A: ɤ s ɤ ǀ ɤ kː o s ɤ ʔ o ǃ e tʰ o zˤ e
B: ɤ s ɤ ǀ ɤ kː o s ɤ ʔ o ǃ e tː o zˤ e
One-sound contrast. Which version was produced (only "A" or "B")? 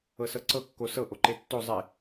B